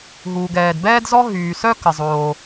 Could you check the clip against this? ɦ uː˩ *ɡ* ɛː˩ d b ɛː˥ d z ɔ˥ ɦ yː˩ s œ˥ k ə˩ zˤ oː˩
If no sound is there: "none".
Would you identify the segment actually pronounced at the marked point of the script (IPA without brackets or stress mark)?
ɡ